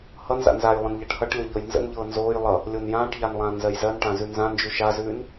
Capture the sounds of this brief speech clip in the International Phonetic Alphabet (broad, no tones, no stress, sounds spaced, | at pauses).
h ʌ n z a̰ n z a j lˠ ə̃ n ʎ a ʈ h ʌ ʈ lʲ ɤ ʎ ɤ j n z ə̰ n ʎ ɤː n z oː j lˠ ʌ | lʲ o n j ãː ʈ ʎ a n lˠ ãː n z ɜ j z ɜ n ʈ ã z ʉ n z ã n d͡ʒ ʉ ʃ a z ʉː n